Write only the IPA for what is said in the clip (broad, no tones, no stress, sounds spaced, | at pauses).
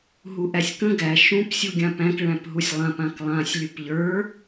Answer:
ɦ u ʔ æ sʲ k ə̃ ɡ æ ʃ ũ p sʲ u ɡʲ ã p æ̃ k ɭ æ̃ p ɦ u sʲ lˠ ã p ã k lˠ ã sʲ lʲ u p ʎ ə˞